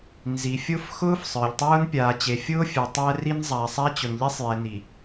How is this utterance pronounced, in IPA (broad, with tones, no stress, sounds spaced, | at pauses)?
n z i˨ fʲ ʊ˦ f x ʊː˦ f sˤ ə˞˨ ʎ tˤ ʊː˦ n pʲ aː˨ t͡ɕ e˨ fʲ ʊː˦ fʲ ɛ˨ tˤ æ˦ r i˦ n zˤ aː˨ sˤ a˦ t͡ɕ ʊ˨ n ʎ e˦ sˤ j ɛ˨ n i˨